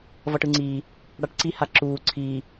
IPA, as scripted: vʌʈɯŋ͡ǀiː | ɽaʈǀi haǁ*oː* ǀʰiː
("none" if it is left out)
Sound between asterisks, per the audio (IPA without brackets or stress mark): uː